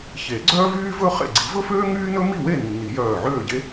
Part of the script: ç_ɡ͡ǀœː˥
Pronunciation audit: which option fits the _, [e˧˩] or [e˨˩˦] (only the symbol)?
e˨˩˦